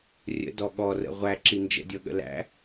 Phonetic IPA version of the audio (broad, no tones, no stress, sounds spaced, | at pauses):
rʲ ə̰ d ɔ ɠ ɔ r ə̰ ʁʷ æ ǁ i n d͡ʒ ə̰ dʲ ɤ ɠ ə̰ l æ̰